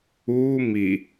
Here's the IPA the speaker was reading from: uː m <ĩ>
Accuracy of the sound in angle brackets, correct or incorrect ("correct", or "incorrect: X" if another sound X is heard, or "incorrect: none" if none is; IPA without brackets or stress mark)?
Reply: incorrect: i